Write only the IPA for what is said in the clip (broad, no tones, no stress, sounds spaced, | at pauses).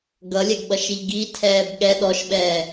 ɡ ʌ lʲ ɛ ɡ ɓ ʌ ʃ i ʎ ɡ i tʰ ɛː b ɠ ɛ ɗ ɔ ʃ ɓ ɛː